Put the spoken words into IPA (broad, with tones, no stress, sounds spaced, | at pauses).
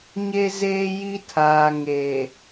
ɲ e˦ z eː˦ j i˦ tʰ aː˨ ŋ eː˨